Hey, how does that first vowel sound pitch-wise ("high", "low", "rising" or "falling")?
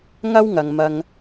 high